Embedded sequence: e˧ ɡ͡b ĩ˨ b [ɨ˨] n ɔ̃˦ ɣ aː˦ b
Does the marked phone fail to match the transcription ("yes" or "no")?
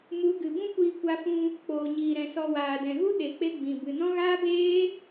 no